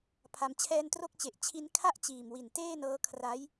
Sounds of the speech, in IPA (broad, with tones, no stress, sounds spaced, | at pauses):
pʰ a˩˦ m t͡ɕʰ ɛː˧ n t r o˥˩ k̚ t͡ɕ e˨˩ ʔ t͡ɕʰ i˦˥ n kʰ a˥˩ ʔ t͡ɕ iː˨˩ m w i˨˩ n t eː˥˩ n ɤː˦˥ kʰ r a˦˥ j